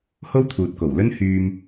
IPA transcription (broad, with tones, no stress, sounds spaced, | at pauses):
h o˥ w t̪ʰ uː˨ t̚ k o˨˩ w l ɵ˥ n h yː˧ m